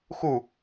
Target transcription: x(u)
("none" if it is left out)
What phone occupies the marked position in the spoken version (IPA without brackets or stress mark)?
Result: u